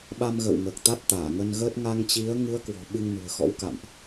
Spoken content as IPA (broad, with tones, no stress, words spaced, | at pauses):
ɓa˧mɣə̰ː˧˨wŋəː˨˩k̚ t̪a˦˥t̚t̪aː˧˩ŋə˧nɣəː˦˥t̚ ŋa˧ŋt͡ɕi˨˦ə̯ ŋɨ˨˦ə̯kwɔ̤˨˩ ɓɨ˧ŋnṳ˨˩ə̯xɔ̰˧˥wka̰˧˨mʔ